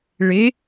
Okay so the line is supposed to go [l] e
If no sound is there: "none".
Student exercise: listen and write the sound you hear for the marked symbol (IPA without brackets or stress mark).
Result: ɭ